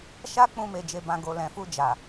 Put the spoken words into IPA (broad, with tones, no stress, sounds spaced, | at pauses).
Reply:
ʃ a˦ k͡p ũ˧ m e˨ d͡ʒ e˨ b ã˨ ɡ o˨ l ɛ̃˨ f u˧ d͡ʒ a˨